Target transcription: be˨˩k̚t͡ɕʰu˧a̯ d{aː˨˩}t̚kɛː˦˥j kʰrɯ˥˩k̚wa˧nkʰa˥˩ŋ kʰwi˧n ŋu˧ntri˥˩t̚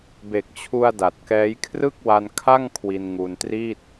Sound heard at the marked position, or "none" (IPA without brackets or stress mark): a˨˩